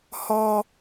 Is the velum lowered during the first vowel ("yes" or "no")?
no